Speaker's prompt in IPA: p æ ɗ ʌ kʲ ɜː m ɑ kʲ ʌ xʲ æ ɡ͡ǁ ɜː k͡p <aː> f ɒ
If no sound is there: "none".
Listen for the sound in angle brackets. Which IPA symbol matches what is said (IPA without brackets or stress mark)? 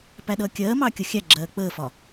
əː